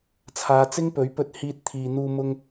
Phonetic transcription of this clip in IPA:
t͡sʰ aː˨˧ t͡s ɪ˥ ŋ p ɵ˨˥ ɥ p ɵ˧ t̚ h iː˧ t̚ t̪ʰ iː˨ n̪ uː˧ m ʊ˧ ŋ

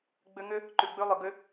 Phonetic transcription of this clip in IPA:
ɡ͡b ʏ˧ ŋ ʏ˦ | ǃ ʉ˨ ɡ͡b ʉ˧ lˠ ʏ˨ ɡ ʏ˦

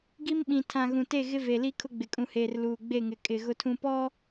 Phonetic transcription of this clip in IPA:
ɡ i˦ m ɓ ĩ˨ tʰ ã˨ ɣ ũ˨ t e˦˨ ɣ ɪ˦ v e˨ l i˦ kʰ ʊ˦ ɡ͡b ɪ˨ kʼ ũ˨ h eː˨ r l uː˨ ɡ͡b e˦˨ ŋ ɪ˨ kʼ ɪ˨ ɣ ʊ˦ tʰ ũ˦ p ɔ˦

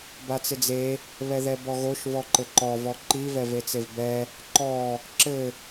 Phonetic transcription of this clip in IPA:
b a t͡s ɪ d͡z e | β ɛ ð ɛ b ɔ ɣ o ʃ v ɔ ǃ ɘ ǃ ɔ v ɔ ǃ i v ɛ v e t͡s e v b ɛ | ǃ ɔ | ǁ ɘ

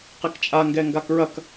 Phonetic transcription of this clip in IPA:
q e k t͡ʃʼ a ŋ ɡ ɛ ŋ ɡ a k ɹ ɐ k

